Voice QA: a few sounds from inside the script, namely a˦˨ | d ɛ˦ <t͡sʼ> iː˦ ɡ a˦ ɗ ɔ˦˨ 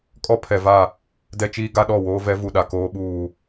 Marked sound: incorrect: t͡ʃ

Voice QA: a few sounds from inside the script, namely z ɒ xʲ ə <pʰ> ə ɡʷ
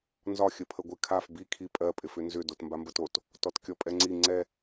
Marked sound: correct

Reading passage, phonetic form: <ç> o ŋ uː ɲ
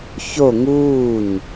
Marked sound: correct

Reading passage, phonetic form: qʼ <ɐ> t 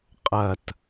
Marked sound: correct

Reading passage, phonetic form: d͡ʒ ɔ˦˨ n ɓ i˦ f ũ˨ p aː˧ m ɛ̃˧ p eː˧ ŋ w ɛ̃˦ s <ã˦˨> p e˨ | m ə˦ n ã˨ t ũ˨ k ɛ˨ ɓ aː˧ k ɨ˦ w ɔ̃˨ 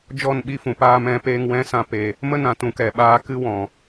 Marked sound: incorrect: ã˧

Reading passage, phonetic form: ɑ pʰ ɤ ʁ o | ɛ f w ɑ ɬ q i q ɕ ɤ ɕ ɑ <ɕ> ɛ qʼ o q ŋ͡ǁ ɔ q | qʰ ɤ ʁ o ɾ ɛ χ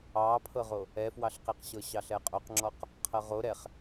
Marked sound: incorrect: ɬ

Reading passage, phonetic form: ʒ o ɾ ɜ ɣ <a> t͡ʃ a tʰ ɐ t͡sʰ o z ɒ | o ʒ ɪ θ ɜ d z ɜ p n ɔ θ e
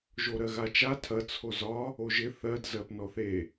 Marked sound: correct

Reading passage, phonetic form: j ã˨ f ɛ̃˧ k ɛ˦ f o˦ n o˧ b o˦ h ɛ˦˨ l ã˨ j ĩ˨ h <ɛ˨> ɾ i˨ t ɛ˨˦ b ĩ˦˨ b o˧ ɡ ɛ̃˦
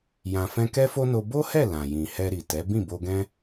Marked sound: incorrect: ɛ˧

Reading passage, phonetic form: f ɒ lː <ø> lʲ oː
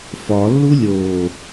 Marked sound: incorrect: u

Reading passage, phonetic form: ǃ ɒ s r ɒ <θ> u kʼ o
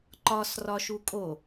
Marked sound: incorrect: ʃ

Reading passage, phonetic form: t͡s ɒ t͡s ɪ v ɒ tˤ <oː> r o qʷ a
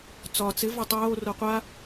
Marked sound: correct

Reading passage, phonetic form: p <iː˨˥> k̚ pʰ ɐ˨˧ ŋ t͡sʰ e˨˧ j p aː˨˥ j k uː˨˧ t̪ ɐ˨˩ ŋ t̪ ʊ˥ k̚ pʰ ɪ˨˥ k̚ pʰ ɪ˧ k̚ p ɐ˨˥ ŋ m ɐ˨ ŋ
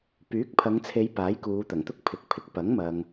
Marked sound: incorrect: yː˨˥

